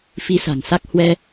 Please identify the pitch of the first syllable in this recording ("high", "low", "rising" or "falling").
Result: rising